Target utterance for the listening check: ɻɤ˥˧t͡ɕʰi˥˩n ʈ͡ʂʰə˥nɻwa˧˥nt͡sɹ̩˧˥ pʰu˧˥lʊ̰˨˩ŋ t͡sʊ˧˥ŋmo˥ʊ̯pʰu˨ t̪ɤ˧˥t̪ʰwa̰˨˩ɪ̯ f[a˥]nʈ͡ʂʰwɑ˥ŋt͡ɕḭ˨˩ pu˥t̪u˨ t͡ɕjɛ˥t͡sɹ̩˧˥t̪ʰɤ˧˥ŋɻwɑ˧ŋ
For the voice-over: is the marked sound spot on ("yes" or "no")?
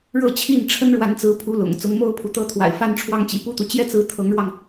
yes